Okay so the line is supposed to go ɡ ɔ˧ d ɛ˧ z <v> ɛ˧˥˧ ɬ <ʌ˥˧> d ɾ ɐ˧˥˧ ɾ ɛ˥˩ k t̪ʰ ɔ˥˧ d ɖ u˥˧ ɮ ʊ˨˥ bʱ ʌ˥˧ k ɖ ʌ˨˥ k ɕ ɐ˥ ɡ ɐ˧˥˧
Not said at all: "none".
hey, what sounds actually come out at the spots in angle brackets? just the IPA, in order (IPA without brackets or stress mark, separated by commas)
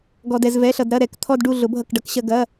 v, ʌ˧